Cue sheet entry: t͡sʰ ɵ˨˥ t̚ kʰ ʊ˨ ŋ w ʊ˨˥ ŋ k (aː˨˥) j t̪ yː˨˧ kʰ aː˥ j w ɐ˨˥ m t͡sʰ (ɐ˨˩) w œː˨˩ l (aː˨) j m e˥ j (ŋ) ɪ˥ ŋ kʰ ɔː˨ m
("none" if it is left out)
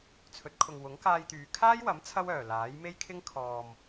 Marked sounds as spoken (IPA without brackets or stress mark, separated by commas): aː˧, ɐ˥, aː˨˥, kʰ